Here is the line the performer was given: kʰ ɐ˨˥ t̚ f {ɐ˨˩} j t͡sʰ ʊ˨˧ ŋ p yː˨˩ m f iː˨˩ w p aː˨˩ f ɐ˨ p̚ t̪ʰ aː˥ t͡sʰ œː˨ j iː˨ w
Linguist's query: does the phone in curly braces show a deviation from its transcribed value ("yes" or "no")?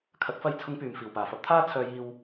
yes